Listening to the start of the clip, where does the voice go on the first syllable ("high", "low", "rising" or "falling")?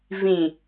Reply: low